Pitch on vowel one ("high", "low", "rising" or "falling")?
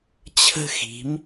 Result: high